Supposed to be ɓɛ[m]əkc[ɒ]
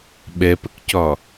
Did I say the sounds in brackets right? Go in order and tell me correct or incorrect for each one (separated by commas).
incorrect, correct